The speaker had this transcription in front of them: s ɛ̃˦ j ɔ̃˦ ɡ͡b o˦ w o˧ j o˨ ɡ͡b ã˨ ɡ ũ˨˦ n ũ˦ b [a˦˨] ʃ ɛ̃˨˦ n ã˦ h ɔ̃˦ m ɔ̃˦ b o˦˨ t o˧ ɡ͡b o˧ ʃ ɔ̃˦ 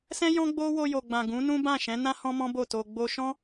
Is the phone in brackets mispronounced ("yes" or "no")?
yes